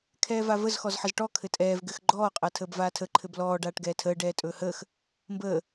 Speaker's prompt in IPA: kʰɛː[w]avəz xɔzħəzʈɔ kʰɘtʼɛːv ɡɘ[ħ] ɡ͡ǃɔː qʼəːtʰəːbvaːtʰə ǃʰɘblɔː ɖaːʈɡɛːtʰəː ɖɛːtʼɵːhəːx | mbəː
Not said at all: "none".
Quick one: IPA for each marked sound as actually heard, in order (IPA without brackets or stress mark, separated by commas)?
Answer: v, x